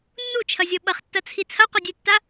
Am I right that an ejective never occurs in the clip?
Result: yes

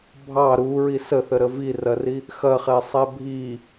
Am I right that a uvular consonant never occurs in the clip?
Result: no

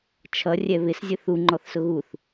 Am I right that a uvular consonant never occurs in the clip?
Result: yes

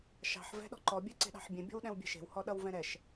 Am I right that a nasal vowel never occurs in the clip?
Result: no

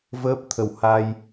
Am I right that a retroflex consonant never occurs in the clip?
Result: yes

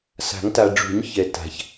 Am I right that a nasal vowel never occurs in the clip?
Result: yes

